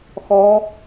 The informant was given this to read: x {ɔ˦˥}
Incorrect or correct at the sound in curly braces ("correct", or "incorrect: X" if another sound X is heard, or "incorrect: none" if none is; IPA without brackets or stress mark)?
correct